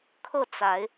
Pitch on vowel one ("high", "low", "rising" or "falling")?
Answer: falling